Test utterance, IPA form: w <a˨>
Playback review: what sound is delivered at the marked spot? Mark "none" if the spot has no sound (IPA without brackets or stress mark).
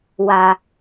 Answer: a˨